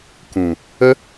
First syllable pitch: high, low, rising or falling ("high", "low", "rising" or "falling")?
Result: low